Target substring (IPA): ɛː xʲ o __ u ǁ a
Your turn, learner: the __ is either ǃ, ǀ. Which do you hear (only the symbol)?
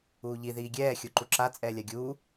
ǃ